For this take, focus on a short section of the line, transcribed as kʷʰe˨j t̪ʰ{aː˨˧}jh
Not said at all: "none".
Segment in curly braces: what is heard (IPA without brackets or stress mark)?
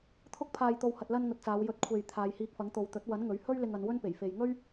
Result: aː˨˧